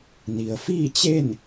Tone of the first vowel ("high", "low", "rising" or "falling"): low